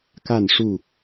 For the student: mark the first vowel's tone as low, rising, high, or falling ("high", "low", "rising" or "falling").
falling